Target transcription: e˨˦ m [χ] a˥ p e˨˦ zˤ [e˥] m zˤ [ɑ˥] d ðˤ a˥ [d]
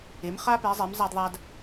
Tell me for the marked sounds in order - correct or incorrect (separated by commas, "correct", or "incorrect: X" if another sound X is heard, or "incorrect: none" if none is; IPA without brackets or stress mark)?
correct, incorrect: e˨˦, incorrect: a˥, correct